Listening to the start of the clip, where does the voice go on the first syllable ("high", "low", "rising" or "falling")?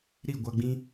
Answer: falling